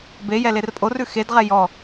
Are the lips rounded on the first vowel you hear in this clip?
no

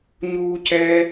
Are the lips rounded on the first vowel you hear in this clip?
yes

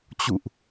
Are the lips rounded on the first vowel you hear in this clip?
yes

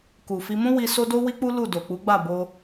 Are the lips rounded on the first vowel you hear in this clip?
yes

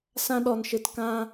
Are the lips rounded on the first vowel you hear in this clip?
no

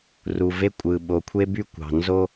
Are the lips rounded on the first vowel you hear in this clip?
yes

